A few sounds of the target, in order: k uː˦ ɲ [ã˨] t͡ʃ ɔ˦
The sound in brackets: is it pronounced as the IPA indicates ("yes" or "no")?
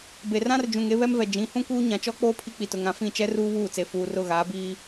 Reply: yes